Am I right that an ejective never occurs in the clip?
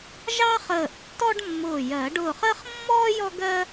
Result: yes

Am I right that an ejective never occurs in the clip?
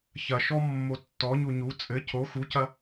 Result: no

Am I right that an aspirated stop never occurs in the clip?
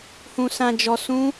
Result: yes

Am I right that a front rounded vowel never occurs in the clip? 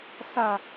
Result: yes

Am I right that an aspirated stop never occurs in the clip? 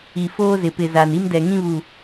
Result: yes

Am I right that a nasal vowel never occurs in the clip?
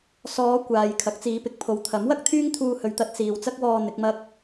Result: yes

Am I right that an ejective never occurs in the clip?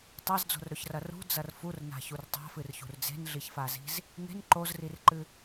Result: yes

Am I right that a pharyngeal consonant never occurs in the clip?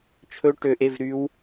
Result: yes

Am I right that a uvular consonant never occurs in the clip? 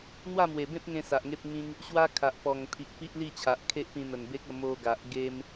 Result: yes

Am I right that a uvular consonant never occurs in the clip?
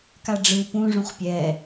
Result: no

